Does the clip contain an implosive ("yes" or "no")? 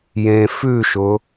no